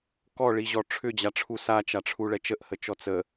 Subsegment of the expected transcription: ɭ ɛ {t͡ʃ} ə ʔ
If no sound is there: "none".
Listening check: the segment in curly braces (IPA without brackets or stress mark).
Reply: t͡ʃ